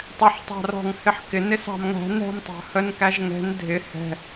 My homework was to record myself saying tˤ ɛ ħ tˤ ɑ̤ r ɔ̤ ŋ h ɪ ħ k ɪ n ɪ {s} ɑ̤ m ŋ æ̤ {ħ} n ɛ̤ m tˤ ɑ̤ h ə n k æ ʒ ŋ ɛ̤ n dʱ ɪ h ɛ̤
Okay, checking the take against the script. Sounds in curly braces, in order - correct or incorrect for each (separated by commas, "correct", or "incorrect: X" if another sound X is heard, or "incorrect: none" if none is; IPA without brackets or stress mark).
correct, incorrect: none